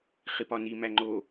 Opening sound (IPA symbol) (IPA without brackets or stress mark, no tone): χ